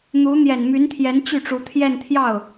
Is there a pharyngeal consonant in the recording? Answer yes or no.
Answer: no